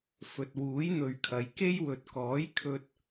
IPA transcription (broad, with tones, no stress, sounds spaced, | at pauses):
f ɵ˨ t̚ w uː˨˥ j n̪ ɵ˨ ɥ kʰ ɐ˨˧ j k e˥ j w ɵ˨ t̚ k ɔː˨˥ j kʰ ɵ˧ t̚